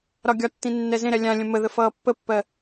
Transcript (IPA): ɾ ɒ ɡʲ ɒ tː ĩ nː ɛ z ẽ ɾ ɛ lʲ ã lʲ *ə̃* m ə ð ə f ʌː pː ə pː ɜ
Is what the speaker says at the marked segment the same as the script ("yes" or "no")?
yes